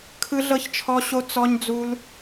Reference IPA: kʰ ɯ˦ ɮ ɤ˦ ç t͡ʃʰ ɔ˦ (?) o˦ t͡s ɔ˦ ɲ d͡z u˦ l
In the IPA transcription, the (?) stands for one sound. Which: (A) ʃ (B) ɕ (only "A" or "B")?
B